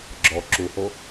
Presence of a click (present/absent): present